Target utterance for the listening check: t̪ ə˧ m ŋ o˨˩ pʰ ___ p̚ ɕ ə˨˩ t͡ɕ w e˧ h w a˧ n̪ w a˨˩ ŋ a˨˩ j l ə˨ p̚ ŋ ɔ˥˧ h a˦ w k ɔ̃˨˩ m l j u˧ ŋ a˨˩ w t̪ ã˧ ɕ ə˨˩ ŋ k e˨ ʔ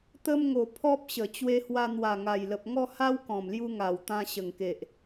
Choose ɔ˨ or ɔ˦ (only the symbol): ɔ˦